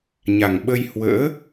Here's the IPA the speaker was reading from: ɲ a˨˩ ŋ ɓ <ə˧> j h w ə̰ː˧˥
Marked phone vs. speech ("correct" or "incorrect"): correct